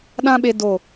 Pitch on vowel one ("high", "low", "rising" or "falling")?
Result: high